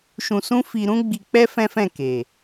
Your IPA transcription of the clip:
ʃ ũ˧ s ũ˦ f i˧ ɾ ũ˦ ɡ͡b i˧ k͡p ɛ˦ f ɛ̃˦ f ɛ̃˦˨ k e˨

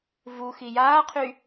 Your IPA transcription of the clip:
v u x i j aː qʰ y

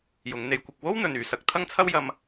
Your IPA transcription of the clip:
j ʊ˨˧ ŋ n̪ e˧ j kʷ ɪ˧ k̚ w o˥ w n̪ ɵ˨ n yː˨˧ s ɐ˨˥ k̚ t̪ʰ ɐ˥ ŋ t͡sʰ ɐ˥ w j ɐ˧ m

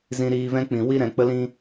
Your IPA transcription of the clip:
z ĩ˧ ɾ iː˧ v ɛ̃˦ k͡p ĩ˨ w i˦ ɾ ɛ̃˨ k͡p ə˦ l ĩ˦

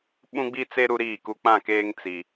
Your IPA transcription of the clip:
ɓ ũ˦ ɡ͡b i˦ t͡s e˦ ɾ u˦ ɾ iː˦˨ k u˦ k͡p ã˦˨ k eː˦ ŋ t͡s i˦

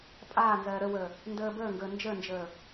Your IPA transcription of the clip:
pʼ aː n z ɜː ɾ ə w əː | n d əː b əː ŋ ɡ əː n d͡ʒ ə n d͡ʒ əː

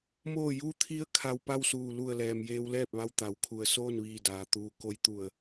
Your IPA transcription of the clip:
m oː˧˩ j u˧˥ t̪ʰ i˧˥ ə̯ kʰ a˧ w p a˥˨ w s uː˧˩ l u˧˩ ə̯ l ɛː˩ m j eː˧ w l ɛː˥˨ p̚ ʋ a˧ w t̪ a˩˧ w kʰ u˧˩ ə̯ s oː˥˨ n ʋ iː˧˩ d aː˩ t̪ uː˩ k o˧ j t̪ u˧˩ ə̯

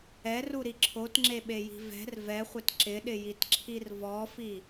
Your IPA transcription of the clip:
ɛ r u ɾ i ǁʰ o t ŋ͡ǁ e ɓ e j i̤ v ɛ̤ r v ɛ χʷ ɪ t ǁ ɪ ɗ ɪ j i t ǁʰ i r v ɔ f i

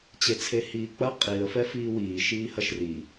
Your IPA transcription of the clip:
t͡ɕ e t͡sʰ e h iː k͡p ɐ qʼ i ə̯ f ɛ f iː w iː ʃ iː h ɐ ʃ r i

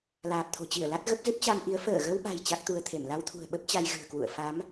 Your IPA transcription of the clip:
l aː˨˩ p̚ t̪ʰ o̤˨˩ t͡ɕ i˧˩ ə̯ l a˦˥ t̚ ɣ ə˦˥ p̚ z ɨ˦˥ p̚ t͡ɕ a˧ m ʔ i˨˦ ə̯ f əː˧˩ ɣ ə˧ w ɓ a̤˨˩ j t͡ɕ a˦˥ k̚ t̪ u˧ ə̯ t̪ʰ e˧˩ m l a˧ w t̪ʰ ṳ˨˩ ə̯ ɓ ə˦˥ p̚ t͡ɕ a˧ j ɣ ɨ̤˨˩ ə̯ k w ṵ˧˨ ə̯ f a˨˦ m

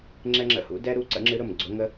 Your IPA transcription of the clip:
ŋ͡ǁ ɛ˥ ŋ͡ǁ ə̰˥˩ h ṵ˧˥ d ɛ˥ ɾ u˥ ǀ ə̰˧˥ ŋ͡ǁ ɨ˧˥ ɾ ʊ˥˩ m ɡ͡ǀ ʊ˧˥ ŋ ə˥

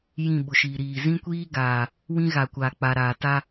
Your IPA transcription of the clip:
j ĩ˦˨ ɓ ʊ˨ ʃ iː˨ ɾ iː˨ z ĩ˦ kʷ iː˦ ɡ aː˨ | w ĩ˦ ɣ a˨ kʷ aː˨ k͡p a˨ ɾ aː˨ t a˦

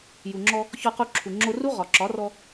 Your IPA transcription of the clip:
j u˨ ŋ͡ǁ ɔ˧ | ç ɔ˧ q u˧ ǁʰ u˨ ŋ͡ǁ o˧ r u˦ ʁ ɒ˨ ǁ ɒ˨˦ r ɔ˧

